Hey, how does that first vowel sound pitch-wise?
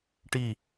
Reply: falling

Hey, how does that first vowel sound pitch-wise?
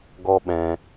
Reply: high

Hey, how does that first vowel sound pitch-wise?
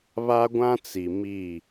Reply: high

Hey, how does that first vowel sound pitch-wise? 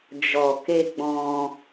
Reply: low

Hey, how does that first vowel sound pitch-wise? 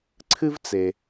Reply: high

